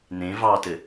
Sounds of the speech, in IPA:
n ẽ v ɑ t ɘ

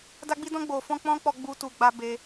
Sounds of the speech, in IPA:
d a˧ ɡ͡b i˧ d ɔ̃˧ ɡ͡b o˨ f ɔ̃˧ k͡p ɔ̃˦ k͡p ɔ˧ ɡ͡b u˦ t u˧ ɡ͡b a˧ b e˧

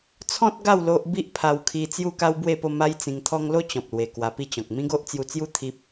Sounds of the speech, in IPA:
t͡sʰ ɔ̃˦ t̚ ɡ a˥˧ w l o˦ ʔ b i˦ ʔ pʰ a˧ w kʰ i˧ t͡s j u˥˧ k a˦ w b w e˥˧ p o˥˧ m a˦ j t͡s ĩ˧ ŋ t̪ʰ ɔ˦ ŋ l o˦ t͡ɕ ɔ̃˨ p̚ l w e˨˩ k w a˧ p i˥˧ t͡ɕ ɔ̃˨ k̚ m ĩ˦ ɡ o˦ ʔ t͡s j u˧ t͡s j u˥˧ t̪ʰ i˦ p̚

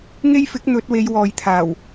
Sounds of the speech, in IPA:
ŋ e˥ j f ɪ˨˥ k̚ n̪ ɵ˨˥ t̚ w e˨˧ j w ɔː˨ j t̪ʰ aː˨˩ w

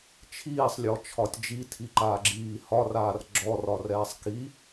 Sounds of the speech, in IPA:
t͡ʃʰ iː sˤ lʲ ɔ t͡ʃʰ ɒ tʲ d͡ʒ i tʰ i ǃ aː ɡ͡ǁ iː h ɒ r aː r ɡ͡ǁ ɔ r ɒ r ɛː sˤ k i

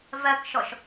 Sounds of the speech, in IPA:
v ɜ k ʃ ɔ ʃ

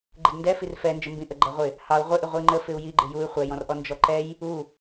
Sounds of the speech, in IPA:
ɡ͡ǃ ɪ d n d ɛ f i r f ɛ n d͡ʒ ə m b ĩ ʔ ə ɡ͡ǃ æ ʁʷ ɪ | h ɑ u̯ ʁʷ ɪ ʔ ɪ ʁʷ i ŋ͡ǃ ə f ɪ u̯ j i ɡ͡ǃ ɪ j u y̯ χʷ ɛ j ɔ̃ r ʔ ɔ n d͡ʒ ɔ ǃ ɛ j | u

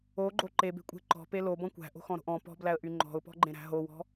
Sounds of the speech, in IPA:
o ɡ͡ǃ o ǃ e b e̤ kʷʼ e̤ ǃ ɔ̤ p e l o b ɔ̃ kʷ æ̤ ʔ o̤ x ɔ̃ ɾ o̤ ʔ ɔ̃ p ɔ̤ b l æ ə̯ ʔ y ŋ͡ǃ ɔ̤ ʊ̯ p ɔ̤ ɡ͡ǃ ẽ ɾ æ̤ ɦ o w ɔ̤

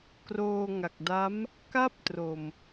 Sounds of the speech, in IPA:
k r oː˧ ŋ a˨˩ k̚ d a˦˥ m | k aː˥˩ p̚ t r o˨˩ m

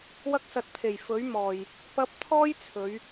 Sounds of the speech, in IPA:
w ɐ˧ k̚ s ɐ˨ t̚ t̪ʰ e˨˩ j f ɵ˨˥ ɥ m ɔː˨ j | p ɐ˨˥ p̚ t̪ʰ ɔː˥ j t͡sʰ ɵ˨˧ ɥ

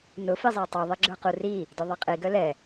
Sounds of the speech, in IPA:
n ʊ f i zˤ a tˤ y ðˤ i ɡ͡ǁ ə˞ q u r i | d œ ðˤ a qʼ i ɡ œ l ɛ

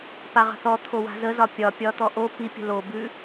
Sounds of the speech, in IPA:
p a ʁ ə̤ θ ɔ t̪ʰ o w a̤ z ə z ɒ pʲ ɒ pʲ ɒ t̪ ɔ ʔ o p i pʲ ə̤ l o b ʉ

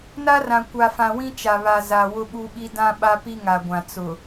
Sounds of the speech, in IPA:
n a˦ r ã˨ kʷ a˨ f ã˨ w ĩ˦ t͡ʃ a˨ β a˨ z a˨ w ʊ˦ ɓ u˦ ɓ i˦ d ã˦ ɓ a˦ p i˦ ŋ a˨ ɡʷ ã˨ t͡s ʊ˨

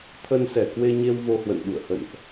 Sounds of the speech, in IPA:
t̪ʰ ə˧ n s ɛ˧˩ k w e˧ ɲ e˧ w v o˧ h w ə̰˧˨ n ɓ ṵ˧˨ ə̯ h ə̰˧˨ n ʔ

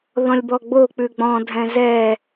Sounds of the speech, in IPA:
ð ɔ̃ lʲ b ɔ ɡ͡b o k͡p ʉ ɡ͡b ɔ̃ dʱ ɛ̃ z ɛ

